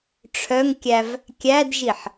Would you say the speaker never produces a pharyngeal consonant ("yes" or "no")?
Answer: no